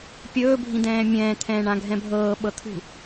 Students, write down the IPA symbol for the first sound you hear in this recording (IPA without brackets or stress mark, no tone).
pʲ